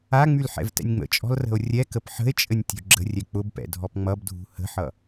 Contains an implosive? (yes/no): no